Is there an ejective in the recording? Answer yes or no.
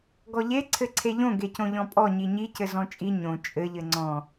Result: yes